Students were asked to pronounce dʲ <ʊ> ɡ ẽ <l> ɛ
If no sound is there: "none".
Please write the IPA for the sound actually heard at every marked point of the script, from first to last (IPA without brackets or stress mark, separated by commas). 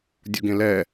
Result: u, l